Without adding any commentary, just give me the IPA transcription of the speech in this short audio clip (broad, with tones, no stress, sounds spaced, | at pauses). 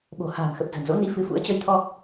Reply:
ɓ o̤˨˩ h a̤ː˨˩ m x ə˨˩ p̚ z ə̤˨˩ n z o̰˧˥ n i˨˦ f ɨ˨˦ f ṵ˧˥ ə̯ t͡ɕ ə˧ j t̪ʰ ɔ˧